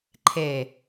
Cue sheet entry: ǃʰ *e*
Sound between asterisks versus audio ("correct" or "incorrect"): correct